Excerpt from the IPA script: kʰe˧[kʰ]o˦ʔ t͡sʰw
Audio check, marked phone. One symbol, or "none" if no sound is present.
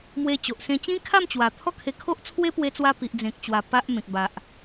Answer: kʰ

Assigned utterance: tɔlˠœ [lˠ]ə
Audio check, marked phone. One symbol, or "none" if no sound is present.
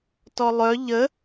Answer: ʎ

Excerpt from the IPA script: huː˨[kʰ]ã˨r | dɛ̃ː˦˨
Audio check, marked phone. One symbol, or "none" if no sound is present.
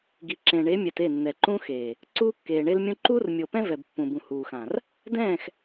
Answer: x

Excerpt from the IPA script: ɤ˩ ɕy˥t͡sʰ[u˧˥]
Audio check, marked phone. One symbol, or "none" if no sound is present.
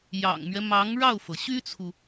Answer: u˨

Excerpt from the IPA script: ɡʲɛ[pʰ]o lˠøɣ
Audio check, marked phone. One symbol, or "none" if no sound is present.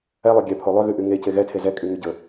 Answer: pʰ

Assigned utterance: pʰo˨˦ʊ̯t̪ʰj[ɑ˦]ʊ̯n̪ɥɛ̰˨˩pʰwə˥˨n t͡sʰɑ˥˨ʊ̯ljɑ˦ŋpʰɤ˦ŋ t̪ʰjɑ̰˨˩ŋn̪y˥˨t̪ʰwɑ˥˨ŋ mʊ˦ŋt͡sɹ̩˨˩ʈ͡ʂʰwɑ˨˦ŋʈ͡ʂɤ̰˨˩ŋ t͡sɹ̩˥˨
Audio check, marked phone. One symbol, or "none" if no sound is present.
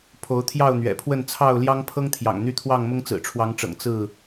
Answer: ɑ˥˨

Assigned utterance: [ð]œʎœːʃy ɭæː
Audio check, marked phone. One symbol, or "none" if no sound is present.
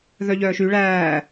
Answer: ð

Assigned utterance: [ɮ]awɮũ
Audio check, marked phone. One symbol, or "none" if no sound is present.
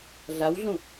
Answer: ɮ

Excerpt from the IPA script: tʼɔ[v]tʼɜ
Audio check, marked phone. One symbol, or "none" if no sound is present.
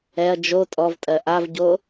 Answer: v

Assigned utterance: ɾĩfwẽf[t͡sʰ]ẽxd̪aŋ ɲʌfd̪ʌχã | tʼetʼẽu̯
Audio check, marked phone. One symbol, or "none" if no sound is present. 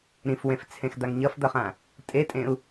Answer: t͡sʰ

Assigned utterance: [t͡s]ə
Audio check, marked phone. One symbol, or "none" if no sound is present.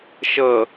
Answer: ʃ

